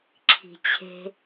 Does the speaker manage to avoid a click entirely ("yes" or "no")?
no